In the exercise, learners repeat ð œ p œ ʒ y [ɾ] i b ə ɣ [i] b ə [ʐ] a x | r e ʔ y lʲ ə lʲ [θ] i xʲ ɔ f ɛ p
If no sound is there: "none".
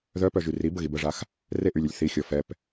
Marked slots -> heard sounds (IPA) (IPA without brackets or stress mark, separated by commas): r, i, ʐ, θ